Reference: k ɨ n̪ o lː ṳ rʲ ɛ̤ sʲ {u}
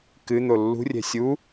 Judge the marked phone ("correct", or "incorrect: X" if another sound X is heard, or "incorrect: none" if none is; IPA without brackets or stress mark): correct